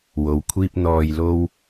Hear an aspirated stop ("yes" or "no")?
yes